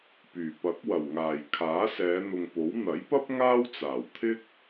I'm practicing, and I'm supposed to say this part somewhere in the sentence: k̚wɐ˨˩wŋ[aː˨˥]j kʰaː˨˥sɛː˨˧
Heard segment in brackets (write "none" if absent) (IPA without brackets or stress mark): aː˨˩